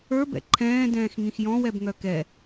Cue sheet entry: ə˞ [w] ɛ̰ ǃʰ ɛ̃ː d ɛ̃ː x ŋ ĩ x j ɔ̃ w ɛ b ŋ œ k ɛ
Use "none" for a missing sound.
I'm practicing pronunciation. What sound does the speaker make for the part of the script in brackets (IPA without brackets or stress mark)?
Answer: b